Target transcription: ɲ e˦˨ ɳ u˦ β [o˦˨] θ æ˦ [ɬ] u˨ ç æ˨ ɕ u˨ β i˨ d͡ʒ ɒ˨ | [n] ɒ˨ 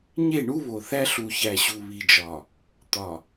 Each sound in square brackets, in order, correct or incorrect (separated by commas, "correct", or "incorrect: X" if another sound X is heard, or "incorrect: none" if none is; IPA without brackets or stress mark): incorrect: o˨, correct, incorrect: t̪